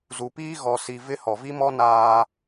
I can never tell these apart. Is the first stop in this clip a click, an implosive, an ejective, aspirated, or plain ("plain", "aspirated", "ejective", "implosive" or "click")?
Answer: plain